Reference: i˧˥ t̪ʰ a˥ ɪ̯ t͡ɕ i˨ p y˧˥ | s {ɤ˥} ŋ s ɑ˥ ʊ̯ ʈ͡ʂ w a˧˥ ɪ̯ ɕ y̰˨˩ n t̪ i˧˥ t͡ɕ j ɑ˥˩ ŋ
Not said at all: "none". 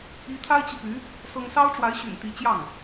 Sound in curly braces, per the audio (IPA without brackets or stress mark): ɤ˥